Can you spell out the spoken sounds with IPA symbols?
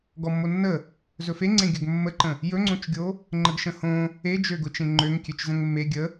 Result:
ɡɔmːonːə | zɵfeŋ͡ǀẽ ɡʲɵɡmːəǃə̃ | jɵŋ͡ǀõt͡ʃɡʲo | ŋ͡ǃəɡʃə̃hõ | ed͡ʒøɡʊt͡ʃẽ ŋ͡ǃøŋkʲøt͡ʃ zə̃ŋmːe ɡʲə

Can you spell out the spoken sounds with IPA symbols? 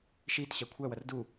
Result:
ʃiːt ɕækʷʰæwʌr du

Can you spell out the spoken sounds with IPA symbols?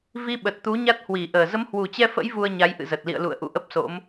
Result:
vi˧ɓə˨˩t̚t̪u˨˦ ɲa˦˥t̚hwi˧˩ʔəː˨˩ zə˨˦mhwu˨˩t͡ɕɛ˧fə̰˧˥j vu˧ə̯ɲa˨˦j ʔɨ̰˧˨zə˨˩t̚ lḭ˧˨ə̯lṵ˧˨ə̯ ʔṵ˧˨ʔə˦˥p̚so̰˧˥m

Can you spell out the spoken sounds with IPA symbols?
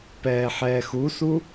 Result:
pɛːħɛːxusu

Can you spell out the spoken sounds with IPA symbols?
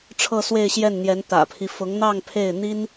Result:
ʈ͡ʂʰɤ˥˧swe˥˧ɪ̯ɕjɛ˥˩nn̪jɛ˧˥n t̪ä̰˨˩pʰi˦ fʊ˧˥ŋn̪ɑ˥˧ŋ pʰe˥˩ɪ̯n̪i˥n

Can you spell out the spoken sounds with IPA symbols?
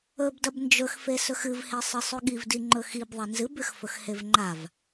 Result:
ɵbdɐb nd͡ʒɵxfe sɵxɨvhe sˤɨsˤʉɠivdi ŋ͡ǃɵxib ðˤenzɨbʉx fɵxhevŋ͡ǃav

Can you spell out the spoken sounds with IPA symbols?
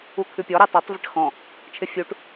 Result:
ukʰʉpʲɔ ɾɛtˤotˤ vɪʈxɔ̃ | t͡ʃʰɪfʲuʈ

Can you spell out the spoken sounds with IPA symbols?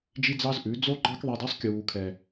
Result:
d͡ʒi˦d͡zɑ˦zʔʉ˨˦ d͡zo˦ɡ͡ǃɑ˦kðˤɛ˧d ɑ˦sˤkʲuː˨kʰɛ˨

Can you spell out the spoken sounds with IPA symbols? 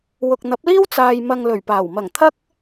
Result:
wʊ˨k̚n̪ɐ˨˥p̚liː˥w t͡saː˨jmɐ˨ŋ lɵ˨˩ɥpaː˨˩wmɐ˨˩ŋ t̪ʰɐ˥k̚

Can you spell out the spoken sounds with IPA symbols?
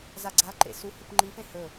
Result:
zaɡ͡ǀaǃḛ su hupŋ͡ǃifẽ hɵ

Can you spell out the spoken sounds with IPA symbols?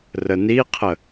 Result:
rəniqʰə

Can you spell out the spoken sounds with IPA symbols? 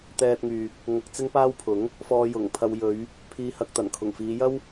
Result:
t̪ɛː˧t̚ŋyː˨k̚ | ŋɐ˧k̚ t͡sɪ˥ŋpaː˥wpʰʊ˨˥ŋ | fɔː˧ jʊ˨˩ŋpʰɐ˧w jɵ˨˧ɥ | pʰiː˧hɐ˧k̚ t̪ɐ˨˩nkʰʊ˨˩ŋfiː˨˧ jɐ˥w

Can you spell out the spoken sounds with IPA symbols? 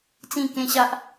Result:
t͡sĩ˥˧kẽ˦ɕa˦ʔ

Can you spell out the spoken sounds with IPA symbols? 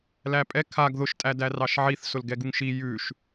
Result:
læpʼɛ kʰaɡ ðʊʃtʼæ dærɑʃʕiθsʊl ɡɛɡuŋʃi jʉʃ

